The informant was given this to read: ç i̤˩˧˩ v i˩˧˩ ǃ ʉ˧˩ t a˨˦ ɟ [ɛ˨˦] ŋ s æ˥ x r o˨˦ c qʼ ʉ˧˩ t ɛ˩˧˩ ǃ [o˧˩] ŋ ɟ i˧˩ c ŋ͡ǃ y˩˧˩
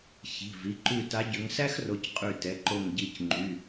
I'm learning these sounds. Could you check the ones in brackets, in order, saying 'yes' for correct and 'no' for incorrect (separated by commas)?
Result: no, yes